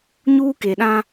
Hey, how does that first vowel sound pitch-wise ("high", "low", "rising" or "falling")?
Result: high